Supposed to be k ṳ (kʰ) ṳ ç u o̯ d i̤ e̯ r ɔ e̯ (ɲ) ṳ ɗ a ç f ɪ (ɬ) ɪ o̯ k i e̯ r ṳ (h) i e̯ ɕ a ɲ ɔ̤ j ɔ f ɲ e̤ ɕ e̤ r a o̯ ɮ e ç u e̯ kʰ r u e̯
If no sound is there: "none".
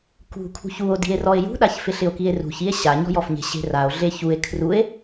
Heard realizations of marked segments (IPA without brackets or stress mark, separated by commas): kʰ, j, ɬ, ç